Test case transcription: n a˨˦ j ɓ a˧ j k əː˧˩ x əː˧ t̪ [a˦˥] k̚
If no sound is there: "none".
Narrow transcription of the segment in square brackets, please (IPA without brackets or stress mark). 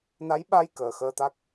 a˦˥